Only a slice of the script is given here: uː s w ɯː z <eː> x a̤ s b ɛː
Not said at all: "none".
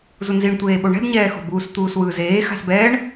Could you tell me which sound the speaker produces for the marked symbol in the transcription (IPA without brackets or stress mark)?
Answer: eː